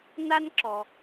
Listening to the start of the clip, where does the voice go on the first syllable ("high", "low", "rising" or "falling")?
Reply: high